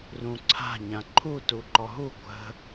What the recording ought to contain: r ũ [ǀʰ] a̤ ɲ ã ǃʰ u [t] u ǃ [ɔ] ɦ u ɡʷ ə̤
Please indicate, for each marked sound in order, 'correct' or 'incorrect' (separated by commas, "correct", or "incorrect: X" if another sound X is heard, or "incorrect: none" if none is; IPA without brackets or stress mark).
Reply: correct, correct, correct